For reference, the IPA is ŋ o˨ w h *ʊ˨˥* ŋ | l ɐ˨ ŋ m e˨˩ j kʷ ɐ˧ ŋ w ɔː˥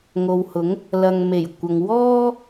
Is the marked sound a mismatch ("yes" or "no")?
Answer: no